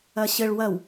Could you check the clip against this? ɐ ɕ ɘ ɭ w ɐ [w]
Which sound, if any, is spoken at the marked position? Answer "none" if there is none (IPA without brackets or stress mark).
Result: w